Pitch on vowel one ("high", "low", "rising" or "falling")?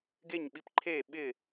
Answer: falling